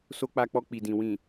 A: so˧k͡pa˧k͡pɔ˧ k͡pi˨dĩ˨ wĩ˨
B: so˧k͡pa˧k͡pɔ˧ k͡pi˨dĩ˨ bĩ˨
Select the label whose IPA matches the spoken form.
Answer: A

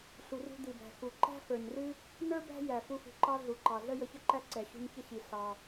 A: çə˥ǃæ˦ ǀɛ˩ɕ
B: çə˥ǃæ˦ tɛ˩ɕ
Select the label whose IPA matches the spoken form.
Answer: A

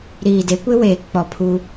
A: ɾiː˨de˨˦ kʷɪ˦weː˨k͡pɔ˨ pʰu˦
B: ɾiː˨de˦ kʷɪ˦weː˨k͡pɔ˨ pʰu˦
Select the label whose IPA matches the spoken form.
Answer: A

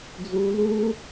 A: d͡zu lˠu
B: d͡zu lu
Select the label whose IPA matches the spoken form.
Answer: B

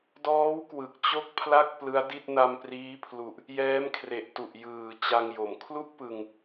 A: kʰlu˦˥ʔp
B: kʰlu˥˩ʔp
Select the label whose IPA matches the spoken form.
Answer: B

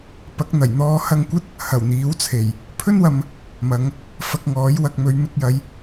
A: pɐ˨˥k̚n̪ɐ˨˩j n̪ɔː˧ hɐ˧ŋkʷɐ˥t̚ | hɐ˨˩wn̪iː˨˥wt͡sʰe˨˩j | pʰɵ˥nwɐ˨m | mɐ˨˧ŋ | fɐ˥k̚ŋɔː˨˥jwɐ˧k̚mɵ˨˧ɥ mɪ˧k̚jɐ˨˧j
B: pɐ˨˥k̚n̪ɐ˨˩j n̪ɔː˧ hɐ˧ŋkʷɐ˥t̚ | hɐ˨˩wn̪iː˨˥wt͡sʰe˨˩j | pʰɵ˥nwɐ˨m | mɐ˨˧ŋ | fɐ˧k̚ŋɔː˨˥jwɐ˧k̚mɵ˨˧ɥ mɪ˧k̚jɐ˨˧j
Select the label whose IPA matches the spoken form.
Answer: B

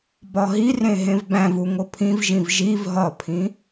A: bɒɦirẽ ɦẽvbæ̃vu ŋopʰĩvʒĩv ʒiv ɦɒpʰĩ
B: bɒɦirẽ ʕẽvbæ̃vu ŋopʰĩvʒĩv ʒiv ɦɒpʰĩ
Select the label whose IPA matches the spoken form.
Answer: A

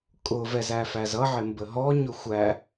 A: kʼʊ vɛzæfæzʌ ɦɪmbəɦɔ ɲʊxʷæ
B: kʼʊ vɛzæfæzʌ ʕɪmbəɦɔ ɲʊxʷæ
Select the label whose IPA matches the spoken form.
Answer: B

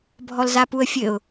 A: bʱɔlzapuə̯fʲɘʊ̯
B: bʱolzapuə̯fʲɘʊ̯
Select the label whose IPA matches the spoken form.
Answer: A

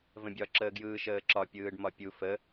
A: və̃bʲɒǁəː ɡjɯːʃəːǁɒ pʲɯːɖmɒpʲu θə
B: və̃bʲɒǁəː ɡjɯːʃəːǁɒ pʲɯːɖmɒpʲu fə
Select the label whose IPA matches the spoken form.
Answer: B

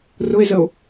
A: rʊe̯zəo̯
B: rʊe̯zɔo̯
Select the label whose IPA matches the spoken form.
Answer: A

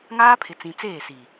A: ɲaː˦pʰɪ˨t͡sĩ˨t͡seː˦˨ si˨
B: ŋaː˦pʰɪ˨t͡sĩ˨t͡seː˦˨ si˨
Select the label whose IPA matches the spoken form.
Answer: B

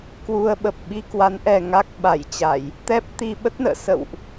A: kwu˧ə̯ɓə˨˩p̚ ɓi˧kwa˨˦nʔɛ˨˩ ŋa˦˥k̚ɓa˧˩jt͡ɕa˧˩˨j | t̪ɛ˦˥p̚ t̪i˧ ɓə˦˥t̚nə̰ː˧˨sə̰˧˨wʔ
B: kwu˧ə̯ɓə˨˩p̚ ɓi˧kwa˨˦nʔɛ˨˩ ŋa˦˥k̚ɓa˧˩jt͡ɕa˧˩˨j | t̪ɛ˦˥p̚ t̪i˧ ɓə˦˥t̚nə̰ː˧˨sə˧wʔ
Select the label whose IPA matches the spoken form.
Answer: A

